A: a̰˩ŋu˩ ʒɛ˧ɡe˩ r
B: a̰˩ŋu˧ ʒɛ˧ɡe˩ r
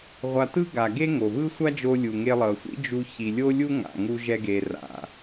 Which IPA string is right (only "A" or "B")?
B